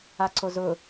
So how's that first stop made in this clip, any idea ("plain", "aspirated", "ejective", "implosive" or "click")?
click